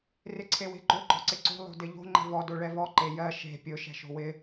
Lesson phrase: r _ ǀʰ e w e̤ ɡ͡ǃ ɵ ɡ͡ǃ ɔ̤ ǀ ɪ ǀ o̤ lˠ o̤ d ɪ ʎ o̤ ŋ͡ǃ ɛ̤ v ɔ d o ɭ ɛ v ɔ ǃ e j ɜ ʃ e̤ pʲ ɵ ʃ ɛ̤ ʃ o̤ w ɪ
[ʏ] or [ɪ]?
ɪ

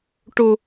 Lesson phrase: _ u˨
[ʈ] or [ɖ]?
ʈ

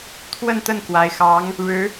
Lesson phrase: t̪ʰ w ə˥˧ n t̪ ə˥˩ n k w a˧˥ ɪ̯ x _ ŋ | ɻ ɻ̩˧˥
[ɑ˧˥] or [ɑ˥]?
ɑ˧˥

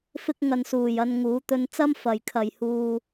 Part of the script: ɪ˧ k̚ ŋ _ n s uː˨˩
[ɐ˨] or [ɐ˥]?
ɐ˨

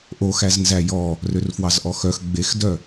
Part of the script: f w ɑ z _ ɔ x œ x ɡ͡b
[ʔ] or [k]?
ʔ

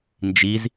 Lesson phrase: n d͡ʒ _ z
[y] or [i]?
i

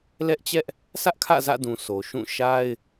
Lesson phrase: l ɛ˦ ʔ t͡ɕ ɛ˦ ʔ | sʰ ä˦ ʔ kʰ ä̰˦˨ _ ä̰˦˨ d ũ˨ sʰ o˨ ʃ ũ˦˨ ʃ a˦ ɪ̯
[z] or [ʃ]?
z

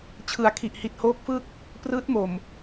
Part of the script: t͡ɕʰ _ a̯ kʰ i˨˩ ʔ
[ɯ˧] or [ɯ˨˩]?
ɯ˨˩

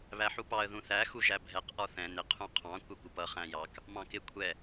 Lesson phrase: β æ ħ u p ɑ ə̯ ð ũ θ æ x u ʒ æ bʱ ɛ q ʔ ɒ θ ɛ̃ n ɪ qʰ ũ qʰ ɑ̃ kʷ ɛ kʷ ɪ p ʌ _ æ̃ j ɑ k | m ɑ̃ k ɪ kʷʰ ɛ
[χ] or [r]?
χ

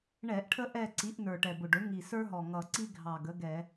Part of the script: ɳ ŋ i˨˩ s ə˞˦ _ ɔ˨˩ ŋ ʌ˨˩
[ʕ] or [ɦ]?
ɦ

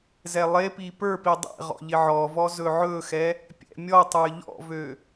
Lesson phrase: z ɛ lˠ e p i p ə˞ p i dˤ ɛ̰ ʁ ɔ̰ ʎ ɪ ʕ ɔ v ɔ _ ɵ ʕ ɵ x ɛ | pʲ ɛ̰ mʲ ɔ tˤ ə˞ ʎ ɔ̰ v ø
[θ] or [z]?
z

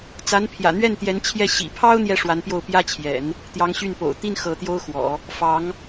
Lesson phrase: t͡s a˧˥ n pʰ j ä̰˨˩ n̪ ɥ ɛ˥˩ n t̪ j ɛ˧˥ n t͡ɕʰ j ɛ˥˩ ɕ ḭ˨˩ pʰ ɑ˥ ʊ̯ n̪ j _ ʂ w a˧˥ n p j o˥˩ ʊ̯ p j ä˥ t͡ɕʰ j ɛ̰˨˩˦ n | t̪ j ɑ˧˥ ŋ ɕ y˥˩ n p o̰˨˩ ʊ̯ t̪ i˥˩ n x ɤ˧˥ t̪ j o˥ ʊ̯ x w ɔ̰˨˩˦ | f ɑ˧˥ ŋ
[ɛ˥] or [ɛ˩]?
ɛ˥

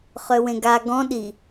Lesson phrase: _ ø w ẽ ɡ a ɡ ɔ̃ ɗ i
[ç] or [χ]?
χ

